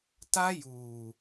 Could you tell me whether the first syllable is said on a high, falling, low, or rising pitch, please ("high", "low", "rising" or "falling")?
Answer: high